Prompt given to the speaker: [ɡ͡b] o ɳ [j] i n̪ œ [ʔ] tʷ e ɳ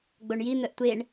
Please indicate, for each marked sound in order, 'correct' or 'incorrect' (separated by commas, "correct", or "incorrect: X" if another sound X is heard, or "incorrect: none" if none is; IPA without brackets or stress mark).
correct, correct, correct